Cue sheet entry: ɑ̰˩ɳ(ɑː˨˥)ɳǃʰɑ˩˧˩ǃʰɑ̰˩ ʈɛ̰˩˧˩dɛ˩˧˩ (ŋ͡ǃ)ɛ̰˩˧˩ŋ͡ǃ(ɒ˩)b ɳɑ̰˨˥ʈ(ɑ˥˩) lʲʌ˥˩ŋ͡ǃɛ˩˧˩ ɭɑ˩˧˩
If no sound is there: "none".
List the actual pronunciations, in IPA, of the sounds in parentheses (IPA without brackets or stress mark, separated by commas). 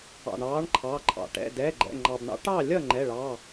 ɑː˨˥, ɡ͡ǃ, ɑ˩, ɑ˥˩